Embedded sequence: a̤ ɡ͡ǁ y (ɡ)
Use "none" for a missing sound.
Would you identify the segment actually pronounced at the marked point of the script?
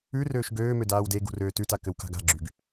ɡ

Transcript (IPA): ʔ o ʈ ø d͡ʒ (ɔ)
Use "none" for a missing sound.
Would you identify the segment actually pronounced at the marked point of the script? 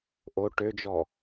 ɔ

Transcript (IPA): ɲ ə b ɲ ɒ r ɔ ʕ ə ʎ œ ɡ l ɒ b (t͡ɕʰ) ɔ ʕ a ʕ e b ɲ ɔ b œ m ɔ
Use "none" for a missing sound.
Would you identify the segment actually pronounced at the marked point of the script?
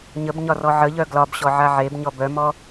ɕ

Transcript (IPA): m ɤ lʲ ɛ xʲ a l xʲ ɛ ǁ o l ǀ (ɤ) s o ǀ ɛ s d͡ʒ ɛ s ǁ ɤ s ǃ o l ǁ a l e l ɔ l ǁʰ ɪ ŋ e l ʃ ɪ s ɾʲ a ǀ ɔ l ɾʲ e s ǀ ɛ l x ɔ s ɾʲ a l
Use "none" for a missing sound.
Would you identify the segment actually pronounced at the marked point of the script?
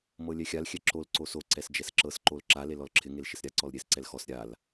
o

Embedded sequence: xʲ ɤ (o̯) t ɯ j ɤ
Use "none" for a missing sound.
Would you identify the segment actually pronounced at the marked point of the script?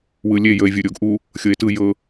e̯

